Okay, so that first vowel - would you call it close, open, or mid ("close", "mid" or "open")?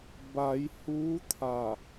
open